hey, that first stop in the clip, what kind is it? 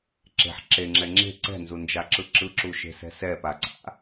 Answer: click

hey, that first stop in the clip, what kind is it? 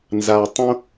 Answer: plain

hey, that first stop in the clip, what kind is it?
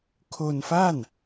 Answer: aspirated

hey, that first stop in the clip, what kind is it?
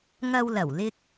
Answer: plain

